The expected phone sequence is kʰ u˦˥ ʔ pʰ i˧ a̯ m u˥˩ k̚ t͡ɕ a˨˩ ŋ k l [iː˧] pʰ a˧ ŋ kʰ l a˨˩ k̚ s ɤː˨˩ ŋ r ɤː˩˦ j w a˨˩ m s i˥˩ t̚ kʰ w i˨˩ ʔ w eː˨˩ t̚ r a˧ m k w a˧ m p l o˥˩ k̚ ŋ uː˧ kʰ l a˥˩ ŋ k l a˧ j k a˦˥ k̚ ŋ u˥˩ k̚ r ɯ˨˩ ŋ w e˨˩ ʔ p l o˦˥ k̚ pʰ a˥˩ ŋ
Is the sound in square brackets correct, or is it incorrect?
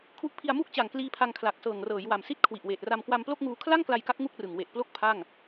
correct